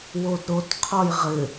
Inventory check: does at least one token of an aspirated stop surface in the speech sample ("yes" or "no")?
yes